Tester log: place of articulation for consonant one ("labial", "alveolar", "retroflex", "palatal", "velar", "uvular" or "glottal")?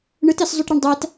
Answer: retroflex